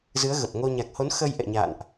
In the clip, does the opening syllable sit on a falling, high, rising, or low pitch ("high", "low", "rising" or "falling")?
rising